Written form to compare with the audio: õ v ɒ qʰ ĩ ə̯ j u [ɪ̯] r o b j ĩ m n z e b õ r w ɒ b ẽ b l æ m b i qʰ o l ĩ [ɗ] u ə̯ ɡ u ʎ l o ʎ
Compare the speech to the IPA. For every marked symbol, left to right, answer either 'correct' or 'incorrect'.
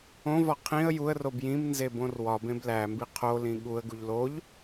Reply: incorrect, incorrect

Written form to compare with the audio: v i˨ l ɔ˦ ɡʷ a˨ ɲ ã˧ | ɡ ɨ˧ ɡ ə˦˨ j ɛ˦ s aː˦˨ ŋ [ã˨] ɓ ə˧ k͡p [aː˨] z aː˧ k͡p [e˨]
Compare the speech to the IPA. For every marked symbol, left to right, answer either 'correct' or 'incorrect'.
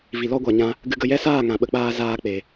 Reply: correct, incorrect, correct

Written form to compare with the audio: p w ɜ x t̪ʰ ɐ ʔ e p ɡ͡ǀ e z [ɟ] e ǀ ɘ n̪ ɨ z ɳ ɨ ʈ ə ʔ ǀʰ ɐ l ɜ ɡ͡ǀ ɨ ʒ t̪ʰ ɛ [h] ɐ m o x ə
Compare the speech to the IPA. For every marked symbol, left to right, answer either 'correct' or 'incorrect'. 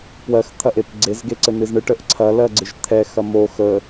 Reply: incorrect, incorrect

